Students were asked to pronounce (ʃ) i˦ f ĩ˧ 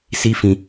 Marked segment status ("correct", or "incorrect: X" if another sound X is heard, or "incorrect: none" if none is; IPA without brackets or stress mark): incorrect: s